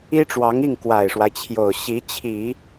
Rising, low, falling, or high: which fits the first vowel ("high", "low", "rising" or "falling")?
high